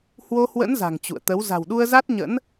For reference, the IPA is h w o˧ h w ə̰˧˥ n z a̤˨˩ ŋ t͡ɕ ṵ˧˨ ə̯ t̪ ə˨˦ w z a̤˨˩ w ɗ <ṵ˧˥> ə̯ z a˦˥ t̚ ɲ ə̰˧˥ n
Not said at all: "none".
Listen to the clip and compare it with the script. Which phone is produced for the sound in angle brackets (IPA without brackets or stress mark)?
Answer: u˧